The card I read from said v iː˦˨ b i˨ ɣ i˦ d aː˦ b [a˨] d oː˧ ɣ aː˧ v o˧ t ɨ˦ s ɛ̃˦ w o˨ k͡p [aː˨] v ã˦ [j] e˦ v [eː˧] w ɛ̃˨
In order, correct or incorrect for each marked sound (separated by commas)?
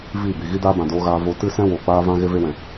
incorrect, incorrect, incorrect, incorrect